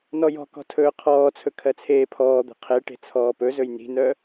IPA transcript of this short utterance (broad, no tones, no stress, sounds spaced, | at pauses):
n ɔ j ɔ̤ k ɔ̤ tʰ ɵː qʰ ɔː t͡sʰ ɵ kʰ ɜ t͡sʰ eː pʰ ɔː d̪ e̤ qʰ e ʈ e̤ t͡sʰ ɔː p ɵ z ɵ j n i̤ n œ